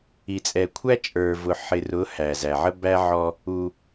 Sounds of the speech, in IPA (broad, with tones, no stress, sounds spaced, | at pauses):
i˨ t͡sʼ ɛ˨ kʷʰ æ˦ t͡ʃʼ ə˞˨ v ʊ˨ ħ ɪ˨ r ʊ˨˦ h æ˨ z æ˨ ʕ ə˦ b æ˦ ʕ ɔ˦ | u˦